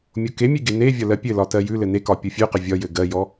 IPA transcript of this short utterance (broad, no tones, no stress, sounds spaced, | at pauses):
mʲ o k e mʲ ʉ ɡ e n e vʲ ɒ l ɜ pʲ ɘ l ɒ t ɜ j ʉ l ɘ n e k ɒ pʲ o fʲ ʉ q ɘ vʲ ɒ j ɘ ɡ ɜ j ɔ